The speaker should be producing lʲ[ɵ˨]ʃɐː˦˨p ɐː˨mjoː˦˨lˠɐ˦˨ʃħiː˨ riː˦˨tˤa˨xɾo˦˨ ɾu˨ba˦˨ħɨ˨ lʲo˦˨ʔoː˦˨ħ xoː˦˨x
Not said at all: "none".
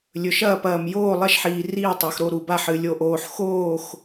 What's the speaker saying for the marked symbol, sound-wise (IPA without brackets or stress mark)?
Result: ɵ˨